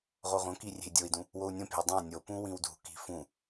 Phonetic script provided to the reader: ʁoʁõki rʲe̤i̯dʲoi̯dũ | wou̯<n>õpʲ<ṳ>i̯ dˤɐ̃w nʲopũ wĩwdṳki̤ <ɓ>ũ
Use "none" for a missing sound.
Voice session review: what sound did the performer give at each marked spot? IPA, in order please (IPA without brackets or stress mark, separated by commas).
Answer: nʲ, o̤, f